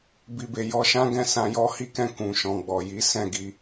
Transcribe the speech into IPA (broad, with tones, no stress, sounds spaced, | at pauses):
b i˨ b e˨ j ɔ˧ ʃ ã˦ ɡ ɛ̃˦˨ s ã˧ j ɔ˦ h i˦ k ɛ̃˦˨ k ũ˨ ʃ ɔ̃˨ ɡ͡b ɔ˨ j i˨˦ s ɛ̃˦˨ ɡ i˧